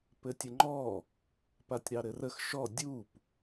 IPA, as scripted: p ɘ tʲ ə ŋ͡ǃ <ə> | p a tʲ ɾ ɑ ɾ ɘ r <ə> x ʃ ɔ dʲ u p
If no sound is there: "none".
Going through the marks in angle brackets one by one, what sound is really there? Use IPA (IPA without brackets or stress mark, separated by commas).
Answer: ɔ, ə